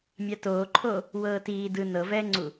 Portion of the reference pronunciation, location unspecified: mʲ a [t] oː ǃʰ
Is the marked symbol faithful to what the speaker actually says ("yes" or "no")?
yes